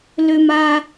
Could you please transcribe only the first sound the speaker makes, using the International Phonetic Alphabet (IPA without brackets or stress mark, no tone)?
l